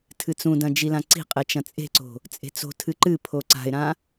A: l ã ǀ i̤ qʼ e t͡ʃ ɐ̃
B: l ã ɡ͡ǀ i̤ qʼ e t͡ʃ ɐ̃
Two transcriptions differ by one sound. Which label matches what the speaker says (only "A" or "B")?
A